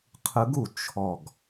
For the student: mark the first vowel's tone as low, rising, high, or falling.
rising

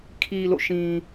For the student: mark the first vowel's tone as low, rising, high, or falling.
low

